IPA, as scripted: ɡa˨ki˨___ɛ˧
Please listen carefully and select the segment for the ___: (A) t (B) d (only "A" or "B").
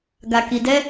B